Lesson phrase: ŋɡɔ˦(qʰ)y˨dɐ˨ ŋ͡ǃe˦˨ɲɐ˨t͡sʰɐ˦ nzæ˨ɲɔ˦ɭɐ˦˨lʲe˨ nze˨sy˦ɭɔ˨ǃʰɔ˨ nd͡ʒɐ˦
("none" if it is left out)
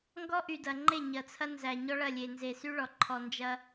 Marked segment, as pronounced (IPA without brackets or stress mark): ʔ